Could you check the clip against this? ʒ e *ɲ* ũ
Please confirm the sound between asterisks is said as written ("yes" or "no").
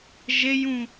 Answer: no